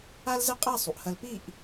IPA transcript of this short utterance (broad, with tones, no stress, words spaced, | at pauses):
a˥lzɪ˥˧qʼa˥˧ sˤu˩˧ʔhɐ˧lpi˥˧ʔ